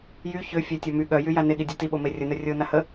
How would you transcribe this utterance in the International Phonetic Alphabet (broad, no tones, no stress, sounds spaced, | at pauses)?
j y ç ø fʲ œ tʲ ɔ m y ɠ œ j y j a n e ɠ i dʲ u t i ɓ o m e rʲ ə n œ rʲ o n a h ə